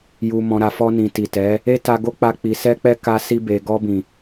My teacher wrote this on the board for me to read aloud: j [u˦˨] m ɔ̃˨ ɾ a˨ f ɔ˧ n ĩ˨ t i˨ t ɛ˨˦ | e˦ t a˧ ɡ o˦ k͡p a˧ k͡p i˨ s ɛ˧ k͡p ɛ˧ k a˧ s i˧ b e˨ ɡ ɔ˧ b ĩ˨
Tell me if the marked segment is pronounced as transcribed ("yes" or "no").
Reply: no